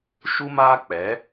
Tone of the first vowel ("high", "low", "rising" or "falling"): high